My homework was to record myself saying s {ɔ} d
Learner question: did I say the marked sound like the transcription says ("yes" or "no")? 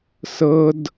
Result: no